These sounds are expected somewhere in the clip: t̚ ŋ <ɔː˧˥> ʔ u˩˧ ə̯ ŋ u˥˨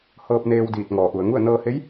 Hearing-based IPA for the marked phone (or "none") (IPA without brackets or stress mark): ɔː˩˧